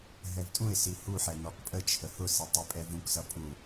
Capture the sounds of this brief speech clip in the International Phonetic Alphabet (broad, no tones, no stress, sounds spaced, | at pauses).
ɦ ɛ v tʼ ũ ɪ̯ s i h u ħ ɛ n ɔ k pʼ ə t͡ʃʰ ə h ʊ s i tˤ i pʼ ɛ v ũ k s ʌ pʼ u